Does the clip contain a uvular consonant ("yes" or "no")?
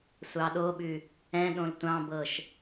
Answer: no